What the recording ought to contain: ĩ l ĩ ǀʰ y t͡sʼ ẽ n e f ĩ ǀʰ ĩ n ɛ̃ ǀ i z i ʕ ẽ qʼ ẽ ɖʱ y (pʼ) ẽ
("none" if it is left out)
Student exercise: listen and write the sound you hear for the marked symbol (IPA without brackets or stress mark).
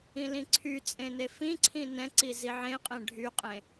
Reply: qʼ